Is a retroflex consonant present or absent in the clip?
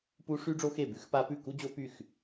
present